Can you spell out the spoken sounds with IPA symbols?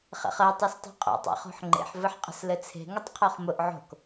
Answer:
χ ɛ̰ χ ɜ tˤ o s tˤ e̤ qʼ o̰ tˤ ɛ̰ χ o̤ ħ ŋ͡ǃ ḛ ħ v ɘ ħ qʼ ə̤ s l ɘ t͡sʰ e̤ ŋ ə tˤ qʰ o χ m ʊ ʔ ʕ o̤ k

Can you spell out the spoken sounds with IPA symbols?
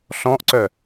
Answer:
ɬ ɔ̃ ʔ ǀ œ

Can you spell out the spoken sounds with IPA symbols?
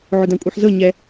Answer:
ʕ ʊ d ã kʷʼ ɤ ħ z ɤ ɲ ɛ

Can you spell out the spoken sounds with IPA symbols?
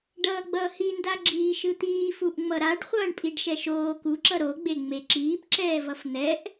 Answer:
ɖ ʌː ɡ͡b ʌː h i n d a ɡ͡ǁ iː ʃ ɯ t̪ iː f u ʔ ŋ͡m ʌ ɾ a ɖ χʷ ʌː ɳ pʼ i ɖ ʃ ɛ ʃ oː k u ǁ ʌ ɾ o ɡ͡b e ŋ͡m e ǁ iː p ǁ ɛː v ʌ f n̪ ɛ ʔ

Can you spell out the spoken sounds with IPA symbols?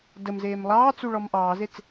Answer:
d ə m z eː m lˠ ɑː t͡s u ɭ ɔ m ʔ ɑː z e t͡s

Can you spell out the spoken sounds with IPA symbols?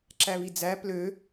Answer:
ǁ æ β i d͡z æ p l ø

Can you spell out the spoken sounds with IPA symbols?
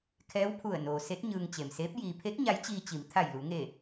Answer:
kʰ ɛː˧˥ w pʰ u˧˩ ə̯ n oː˩ s e˧˥ t̚ ɲ ɯː˧ ŋ t͡ɕ e˩ m s eː˧˥ p̚ j iː˩ pʰ e˧˥ k̚ ɲ a˧˥ j t͡ɕ iː˧ t͡ɕ i˩˧ m t̪ʰ a˧˩ j l u˩˧ ŋ e˧˩

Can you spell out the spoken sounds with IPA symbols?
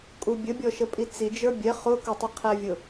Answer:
kʼ u bʲ ə bʲ ɔ ʃ ə pʼ i t͡s i d͡ʒ ə˞ bʲ ɛ χ ʊ k ʊ tˤ i qʰ æ vʲ ʊ

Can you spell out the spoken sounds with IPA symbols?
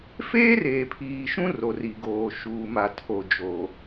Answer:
f eː˦ r eː˨ pʰ iː˨ ʃ ũ˦ r o˨ r i˨ ɡ oː˨ ʃ uː˨ m a˨ tʰ o˨ d͡ʒ o˨

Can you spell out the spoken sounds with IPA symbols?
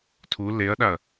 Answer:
tʰ u l e ɐ̯ ɗ a ɐ̯

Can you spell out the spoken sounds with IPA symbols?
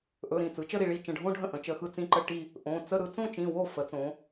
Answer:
ʔ ɵ˩˧˩ ɾ ĩ˥˩ t͡s ɯ˩˧ t͡ʃ ə˥˧ ɾ i˥˩ ɭ i˥˧ t͡ʃ ə̃˩˧˩ ɖʱ õ˥˧ ɖʱ ə̃˥˩ ʔ ə̃˩˧ t͡ʃ ə˩˧˩ x ɯ˥˩ t͡s ĩ˥˩ ǃ ə˥˧ ʈ i˥˧ | ʔ õ˩˧˩ t͡s ə˥˧ ɾ ɯ˩˧ t͡s õ˥˧ t͡ʃ ĩ˩˧˩ w o˥˩ f ə˩˧ t͡s õ˩˧

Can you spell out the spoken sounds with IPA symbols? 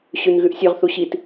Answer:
ɕ ʉ n ɣ ʉ ʔ sʲ ʉ ʁ θ u ɕ i t

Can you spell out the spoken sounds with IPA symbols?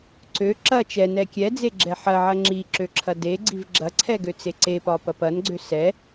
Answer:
ǀ ø ǁ ɐ t͡ʃ ɛ n ɛ kʲ ɛ d͡z e ɡ͡ǁ ɛ ħ ɐ ʕ ɐ ŋ͡ǁ i ǁ ø ǁʰ ɐ d e ɡ͡ǀ i v ɡ͡ǁ ɐ ǀʰ ɛ ɡ ø t͡s e ǀ e p ɒ p ɐ p ɐ n ɡ͡ǀ ø s ɛ

